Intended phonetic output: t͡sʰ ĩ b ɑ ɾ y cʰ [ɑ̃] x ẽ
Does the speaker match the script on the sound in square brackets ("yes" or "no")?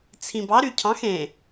yes